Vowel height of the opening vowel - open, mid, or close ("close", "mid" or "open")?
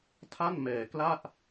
open